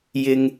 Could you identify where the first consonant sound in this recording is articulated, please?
palatal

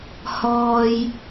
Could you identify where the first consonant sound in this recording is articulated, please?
glottal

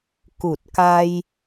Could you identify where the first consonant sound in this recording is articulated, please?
velar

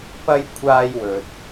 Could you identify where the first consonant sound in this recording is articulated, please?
labial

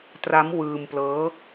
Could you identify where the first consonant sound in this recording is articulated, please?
alveolar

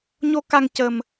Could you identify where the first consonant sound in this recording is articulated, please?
palatal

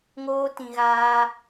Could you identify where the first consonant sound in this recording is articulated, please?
velar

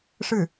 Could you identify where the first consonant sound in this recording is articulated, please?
retroflex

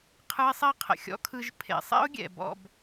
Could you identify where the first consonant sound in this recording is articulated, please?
uvular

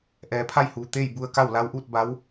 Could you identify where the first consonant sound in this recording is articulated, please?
glottal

